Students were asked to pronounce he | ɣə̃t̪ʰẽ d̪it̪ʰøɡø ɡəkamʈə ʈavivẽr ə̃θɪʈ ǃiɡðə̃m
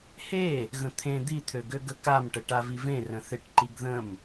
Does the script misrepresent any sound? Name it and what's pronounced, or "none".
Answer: none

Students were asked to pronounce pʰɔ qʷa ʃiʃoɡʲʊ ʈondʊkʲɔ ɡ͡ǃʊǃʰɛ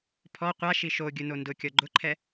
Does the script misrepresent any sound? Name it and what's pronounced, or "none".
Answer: ʈ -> n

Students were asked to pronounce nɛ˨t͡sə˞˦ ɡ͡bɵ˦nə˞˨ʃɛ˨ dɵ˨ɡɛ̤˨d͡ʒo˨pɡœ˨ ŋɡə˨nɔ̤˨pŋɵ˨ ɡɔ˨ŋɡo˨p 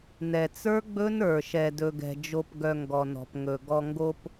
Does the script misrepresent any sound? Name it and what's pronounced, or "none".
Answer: ə˨ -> ɔ˨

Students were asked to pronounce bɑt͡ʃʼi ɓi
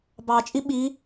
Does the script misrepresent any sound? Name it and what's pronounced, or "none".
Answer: none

